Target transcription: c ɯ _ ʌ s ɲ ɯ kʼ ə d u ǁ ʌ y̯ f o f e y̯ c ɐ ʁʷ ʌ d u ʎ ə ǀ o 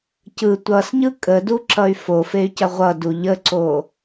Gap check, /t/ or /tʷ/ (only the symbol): tʷ